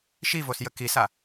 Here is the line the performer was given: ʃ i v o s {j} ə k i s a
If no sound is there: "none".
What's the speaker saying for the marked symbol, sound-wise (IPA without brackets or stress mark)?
j